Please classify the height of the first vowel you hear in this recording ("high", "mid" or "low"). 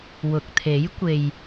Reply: high